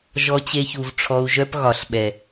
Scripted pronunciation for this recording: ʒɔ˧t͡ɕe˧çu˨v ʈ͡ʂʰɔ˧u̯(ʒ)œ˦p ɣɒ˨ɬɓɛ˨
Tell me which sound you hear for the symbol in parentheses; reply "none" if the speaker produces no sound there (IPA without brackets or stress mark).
ʒ